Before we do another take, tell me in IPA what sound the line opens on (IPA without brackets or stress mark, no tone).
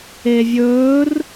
e